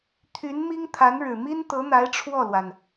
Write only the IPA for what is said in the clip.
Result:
t̪ʰ y˧˥ n m i˥ ŋ t̪ʰ a˧˥ n ɻ ɻ̩˨˩ m i˥ n t̪ ɤ˧˥ n̪ a˧˥ ɪ̯ ʈ͡ʂʰ w ɔ˥˩ l w a˩ n

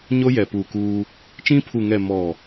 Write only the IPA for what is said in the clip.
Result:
ɲ o˦ j ɛ˨ p uː˨ k uː˦ | t͡ʃ ĩ˦ pʰ u˨ ŋ ɛ˨ m ɔ˨

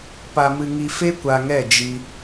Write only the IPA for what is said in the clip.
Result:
p a˧ m ɨ˧ ŋ i˧ f e˦ kʷ a˧ ŋ ɛ˦˨ d͡ʒ i˧

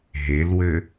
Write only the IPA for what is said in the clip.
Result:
ɦ e l w ɘ

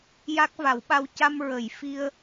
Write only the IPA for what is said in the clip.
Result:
j a˦˥ k̚ v a˨˩˦ w ɓ a˧ w c a˧ m ɹ ə˨˩˨ j f i˧ ə̯

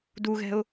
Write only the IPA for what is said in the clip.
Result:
d u ɣ ɛ̤ ʊ̯

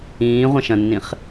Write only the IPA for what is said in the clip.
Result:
ĩː ʁʷ ɐ̃ ʃ ɐ̃ nː ĩ χ

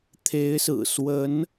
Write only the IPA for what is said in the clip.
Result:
t̪ʰ e˧˥ ɪ̯ s ɹ̩˨˩ s w ə˧˥ n

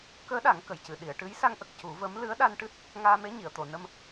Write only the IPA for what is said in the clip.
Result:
k əː˧˥ ɗ a˨˩˦ ŋ k ə˨˩˨ j c ɨ˨˩˨ ɗ i˨˩˨ ə̯ ʈ ɨ˧˥ j s a˧ ŋ ʔ ə˨˩ k̚ c u˨˩˦ v ə˧˥ m l ɨ˧˥ ə̯ ɗ a˧ n ʈ ɨ˦˥ t̚ | ŋ aː˧ m e˧˥ ɲ i˨˩˨ ə̯ t̪ o˨˩˨ n ə˧ m

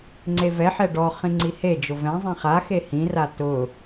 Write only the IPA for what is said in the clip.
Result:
ŋ͡ǀ e v ɛ ħ ɛ ɖ ɔ χ ĩ ŋ͡ǀ i h e d͡ʒ ʊ v ɛ̃ zˤ ĩ χ a x e h ĩ r a t ʊ

